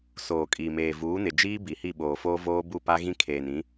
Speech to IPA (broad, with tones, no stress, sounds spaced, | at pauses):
s oː˨ kʼ iː˨ m eː˨ v uː˨˦ n ɪ˨ d͡ʒ iː˦ b i˨ h i˦˨ ɓ oː˨ f oː˦ v oː˦ b u˦˨ p a˦ ɣ ĩ˦ kʰ eː˨ n ĩ˨˦